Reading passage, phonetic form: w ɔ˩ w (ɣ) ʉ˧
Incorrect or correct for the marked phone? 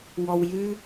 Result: incorrect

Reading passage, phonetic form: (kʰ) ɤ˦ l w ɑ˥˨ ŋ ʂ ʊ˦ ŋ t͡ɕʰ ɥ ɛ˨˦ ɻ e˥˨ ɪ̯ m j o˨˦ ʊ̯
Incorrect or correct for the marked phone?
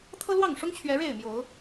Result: incorrect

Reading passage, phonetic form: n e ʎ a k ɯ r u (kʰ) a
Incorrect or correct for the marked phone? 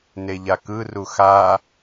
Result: incorrect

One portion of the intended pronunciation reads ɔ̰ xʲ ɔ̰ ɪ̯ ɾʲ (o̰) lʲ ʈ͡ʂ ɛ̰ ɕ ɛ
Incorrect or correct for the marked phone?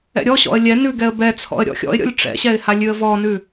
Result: incorrect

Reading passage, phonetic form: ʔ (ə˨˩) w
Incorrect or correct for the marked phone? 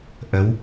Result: incorrect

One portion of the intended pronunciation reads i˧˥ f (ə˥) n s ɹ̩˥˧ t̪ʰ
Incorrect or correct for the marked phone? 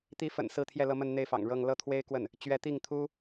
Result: incorrect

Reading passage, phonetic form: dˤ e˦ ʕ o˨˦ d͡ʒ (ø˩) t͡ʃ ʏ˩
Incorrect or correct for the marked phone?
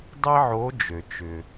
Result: correct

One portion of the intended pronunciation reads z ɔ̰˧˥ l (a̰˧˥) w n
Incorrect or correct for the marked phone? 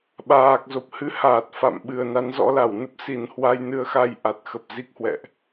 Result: incorrect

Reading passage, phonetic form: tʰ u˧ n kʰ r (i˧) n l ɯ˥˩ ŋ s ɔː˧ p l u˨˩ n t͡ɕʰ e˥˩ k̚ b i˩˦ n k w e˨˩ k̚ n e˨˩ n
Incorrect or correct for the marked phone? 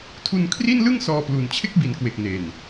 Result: incorrect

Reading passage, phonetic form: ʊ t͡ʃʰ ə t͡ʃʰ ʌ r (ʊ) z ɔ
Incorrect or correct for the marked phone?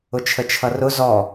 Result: correct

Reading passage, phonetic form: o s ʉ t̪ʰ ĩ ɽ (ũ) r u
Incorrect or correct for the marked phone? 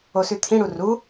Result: incorrect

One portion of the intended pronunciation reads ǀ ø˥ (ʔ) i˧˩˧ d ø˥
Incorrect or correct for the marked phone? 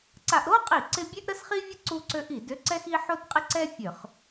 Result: correct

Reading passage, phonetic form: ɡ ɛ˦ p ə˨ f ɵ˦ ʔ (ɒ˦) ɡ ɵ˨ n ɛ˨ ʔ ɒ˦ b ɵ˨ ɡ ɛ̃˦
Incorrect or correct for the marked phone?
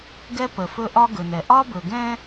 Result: correct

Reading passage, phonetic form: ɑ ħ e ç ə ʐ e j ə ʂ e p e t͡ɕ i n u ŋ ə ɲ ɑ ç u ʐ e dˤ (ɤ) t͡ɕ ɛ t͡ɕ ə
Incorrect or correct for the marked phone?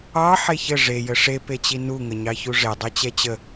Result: correct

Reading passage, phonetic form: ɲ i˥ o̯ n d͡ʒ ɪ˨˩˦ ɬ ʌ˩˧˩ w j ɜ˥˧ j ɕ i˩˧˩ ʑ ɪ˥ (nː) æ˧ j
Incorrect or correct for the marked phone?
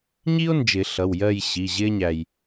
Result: incorrect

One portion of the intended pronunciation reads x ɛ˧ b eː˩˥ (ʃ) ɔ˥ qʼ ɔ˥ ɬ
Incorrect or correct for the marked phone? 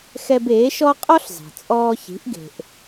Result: correct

